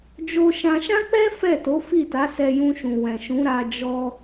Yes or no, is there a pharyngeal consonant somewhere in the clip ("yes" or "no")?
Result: no